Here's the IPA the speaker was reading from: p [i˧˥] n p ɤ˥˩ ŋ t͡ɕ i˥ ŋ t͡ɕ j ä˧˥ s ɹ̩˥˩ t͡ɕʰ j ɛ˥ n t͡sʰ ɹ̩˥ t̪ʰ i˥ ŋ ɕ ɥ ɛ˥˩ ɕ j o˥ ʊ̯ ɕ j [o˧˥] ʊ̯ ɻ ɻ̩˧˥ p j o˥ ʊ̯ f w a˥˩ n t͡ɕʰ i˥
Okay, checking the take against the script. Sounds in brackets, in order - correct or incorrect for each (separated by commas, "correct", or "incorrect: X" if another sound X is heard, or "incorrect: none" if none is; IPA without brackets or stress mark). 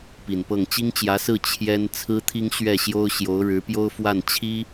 incorrect: i˨˩, correct